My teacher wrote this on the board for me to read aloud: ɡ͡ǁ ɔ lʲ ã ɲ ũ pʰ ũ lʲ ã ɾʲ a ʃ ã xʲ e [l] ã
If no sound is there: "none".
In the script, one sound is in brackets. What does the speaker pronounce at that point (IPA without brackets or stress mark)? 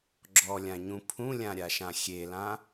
l